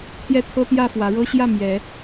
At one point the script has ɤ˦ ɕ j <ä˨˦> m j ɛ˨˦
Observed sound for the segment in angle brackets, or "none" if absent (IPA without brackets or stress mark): ä˥˨